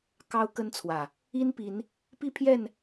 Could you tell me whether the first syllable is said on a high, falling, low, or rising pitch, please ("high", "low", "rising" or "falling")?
high